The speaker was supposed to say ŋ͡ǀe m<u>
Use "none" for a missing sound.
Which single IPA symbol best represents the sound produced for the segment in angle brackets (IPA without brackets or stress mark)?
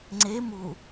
u